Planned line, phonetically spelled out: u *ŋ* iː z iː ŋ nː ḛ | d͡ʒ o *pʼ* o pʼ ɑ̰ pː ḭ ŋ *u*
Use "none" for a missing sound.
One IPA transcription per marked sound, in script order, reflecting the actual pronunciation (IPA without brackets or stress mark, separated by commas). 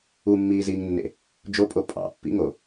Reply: mː, pʼ, o